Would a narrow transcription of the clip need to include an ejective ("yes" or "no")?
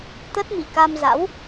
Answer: no